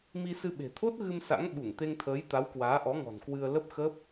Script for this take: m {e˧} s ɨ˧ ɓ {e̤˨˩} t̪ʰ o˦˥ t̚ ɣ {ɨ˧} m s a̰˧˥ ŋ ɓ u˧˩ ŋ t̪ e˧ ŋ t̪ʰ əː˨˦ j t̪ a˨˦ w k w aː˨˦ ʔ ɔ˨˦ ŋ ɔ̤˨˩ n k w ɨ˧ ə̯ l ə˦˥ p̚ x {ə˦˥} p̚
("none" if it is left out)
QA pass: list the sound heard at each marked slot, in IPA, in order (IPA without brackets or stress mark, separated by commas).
i˧, e̤˨˩, ɨ˧, əː˦˥